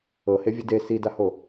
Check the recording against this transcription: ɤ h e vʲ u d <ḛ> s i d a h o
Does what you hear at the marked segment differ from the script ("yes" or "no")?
yes